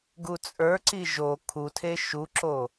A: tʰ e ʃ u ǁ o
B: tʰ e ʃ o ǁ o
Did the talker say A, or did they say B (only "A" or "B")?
A